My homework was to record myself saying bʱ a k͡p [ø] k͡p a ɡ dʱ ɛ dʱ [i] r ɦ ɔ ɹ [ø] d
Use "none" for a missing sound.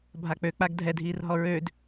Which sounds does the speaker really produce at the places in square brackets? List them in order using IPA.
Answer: ø, iː, ø

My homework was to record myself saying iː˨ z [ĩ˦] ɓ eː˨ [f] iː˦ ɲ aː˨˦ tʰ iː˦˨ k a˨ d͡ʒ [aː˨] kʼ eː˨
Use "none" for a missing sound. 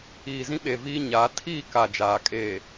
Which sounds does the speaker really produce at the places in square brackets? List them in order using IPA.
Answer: ĩ˦, v, aː˨

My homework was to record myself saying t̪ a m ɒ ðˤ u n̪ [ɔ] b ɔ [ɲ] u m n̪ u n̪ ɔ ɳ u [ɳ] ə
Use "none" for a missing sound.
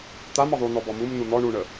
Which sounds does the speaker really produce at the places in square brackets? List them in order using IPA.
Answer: ɔ, m, ɳ

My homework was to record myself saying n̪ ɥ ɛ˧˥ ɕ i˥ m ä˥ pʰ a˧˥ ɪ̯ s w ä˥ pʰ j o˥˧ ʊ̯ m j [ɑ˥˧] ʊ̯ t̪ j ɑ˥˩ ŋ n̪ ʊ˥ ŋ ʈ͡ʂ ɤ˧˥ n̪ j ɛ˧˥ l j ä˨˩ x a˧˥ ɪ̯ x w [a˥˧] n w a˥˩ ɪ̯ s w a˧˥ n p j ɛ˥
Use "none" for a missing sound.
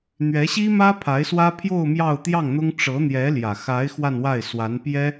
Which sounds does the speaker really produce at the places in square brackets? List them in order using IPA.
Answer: ɑ˥˧, a˥˧

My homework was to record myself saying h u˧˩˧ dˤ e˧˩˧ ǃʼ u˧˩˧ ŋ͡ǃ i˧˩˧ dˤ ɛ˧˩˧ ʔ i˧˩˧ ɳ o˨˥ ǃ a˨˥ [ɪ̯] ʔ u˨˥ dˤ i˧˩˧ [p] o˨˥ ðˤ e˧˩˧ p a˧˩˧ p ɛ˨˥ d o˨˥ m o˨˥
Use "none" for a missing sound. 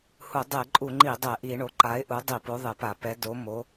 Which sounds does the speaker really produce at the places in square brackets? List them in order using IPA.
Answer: ɪ̯, p

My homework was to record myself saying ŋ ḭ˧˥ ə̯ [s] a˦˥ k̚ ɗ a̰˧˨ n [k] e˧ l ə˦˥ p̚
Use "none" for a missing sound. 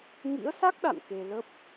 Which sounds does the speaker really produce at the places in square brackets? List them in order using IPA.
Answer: s, k

